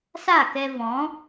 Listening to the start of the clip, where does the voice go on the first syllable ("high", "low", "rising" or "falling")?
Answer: falling